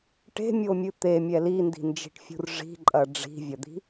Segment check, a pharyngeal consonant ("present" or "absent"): absent